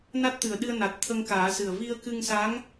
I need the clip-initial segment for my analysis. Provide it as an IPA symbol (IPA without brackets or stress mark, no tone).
n